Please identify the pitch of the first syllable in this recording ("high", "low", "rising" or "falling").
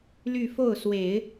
falling